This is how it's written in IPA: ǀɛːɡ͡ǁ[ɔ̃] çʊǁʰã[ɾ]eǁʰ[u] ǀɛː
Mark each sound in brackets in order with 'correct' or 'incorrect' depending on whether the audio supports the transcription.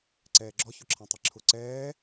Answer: incorrect: ɔ, incorrect: tˤ, incorrect: ʊ

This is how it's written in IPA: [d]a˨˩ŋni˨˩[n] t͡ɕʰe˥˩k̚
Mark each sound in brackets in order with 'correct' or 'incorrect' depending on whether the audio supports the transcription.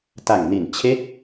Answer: incorrect: t, correct

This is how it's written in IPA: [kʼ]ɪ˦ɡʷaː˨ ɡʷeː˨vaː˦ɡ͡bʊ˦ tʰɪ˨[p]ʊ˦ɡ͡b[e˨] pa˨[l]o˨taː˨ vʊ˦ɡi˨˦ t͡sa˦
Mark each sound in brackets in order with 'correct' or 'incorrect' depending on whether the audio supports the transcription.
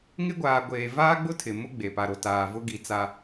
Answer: incorrect: ŋ, incorrect: m, correct, incorrect: ɾ

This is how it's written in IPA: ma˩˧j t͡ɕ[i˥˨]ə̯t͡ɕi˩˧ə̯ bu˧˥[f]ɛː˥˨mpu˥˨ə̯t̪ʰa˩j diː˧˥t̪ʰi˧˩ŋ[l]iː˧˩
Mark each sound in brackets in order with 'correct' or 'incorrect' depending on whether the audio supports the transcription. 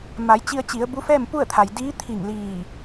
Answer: incorrect: i˧, correct, correct

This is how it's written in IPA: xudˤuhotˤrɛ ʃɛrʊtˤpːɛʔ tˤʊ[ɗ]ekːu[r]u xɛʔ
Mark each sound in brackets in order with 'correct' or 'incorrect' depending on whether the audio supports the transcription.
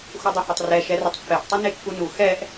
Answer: incorrect: n, incorrect: n

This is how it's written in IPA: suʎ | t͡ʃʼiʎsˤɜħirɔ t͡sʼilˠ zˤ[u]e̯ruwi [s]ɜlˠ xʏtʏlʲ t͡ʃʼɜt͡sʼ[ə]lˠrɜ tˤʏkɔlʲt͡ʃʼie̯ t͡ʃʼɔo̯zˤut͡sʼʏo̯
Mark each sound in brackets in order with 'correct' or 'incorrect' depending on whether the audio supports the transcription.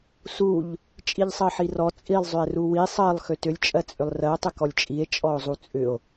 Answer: incorrect: ʏ, incorrect: sˤ, incorrect: ʏ

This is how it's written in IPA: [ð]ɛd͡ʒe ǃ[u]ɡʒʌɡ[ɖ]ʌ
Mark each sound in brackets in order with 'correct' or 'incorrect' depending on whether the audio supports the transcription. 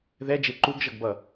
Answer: correct, correct, incorrect: b

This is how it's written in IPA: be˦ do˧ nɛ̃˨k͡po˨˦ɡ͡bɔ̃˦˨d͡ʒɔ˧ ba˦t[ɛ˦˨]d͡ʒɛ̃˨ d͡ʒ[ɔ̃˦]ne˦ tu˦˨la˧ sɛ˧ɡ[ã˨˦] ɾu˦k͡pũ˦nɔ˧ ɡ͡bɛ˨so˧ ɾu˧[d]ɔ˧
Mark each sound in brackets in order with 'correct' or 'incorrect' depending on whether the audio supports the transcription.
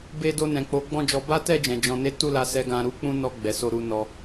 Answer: correct, incorrect: ɔ̃˧, incorrect: ã˧, incorrect: n

